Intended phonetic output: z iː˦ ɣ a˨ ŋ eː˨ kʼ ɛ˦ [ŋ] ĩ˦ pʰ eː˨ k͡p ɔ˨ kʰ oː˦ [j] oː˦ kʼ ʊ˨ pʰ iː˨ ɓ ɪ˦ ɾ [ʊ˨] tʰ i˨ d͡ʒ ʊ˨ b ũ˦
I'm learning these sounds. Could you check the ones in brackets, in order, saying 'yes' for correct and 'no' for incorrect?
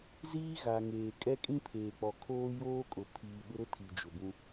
no, yes, no

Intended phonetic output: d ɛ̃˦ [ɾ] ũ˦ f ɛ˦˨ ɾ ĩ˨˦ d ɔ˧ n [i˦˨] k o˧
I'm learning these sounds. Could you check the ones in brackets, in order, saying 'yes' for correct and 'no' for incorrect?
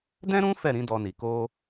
yes, no

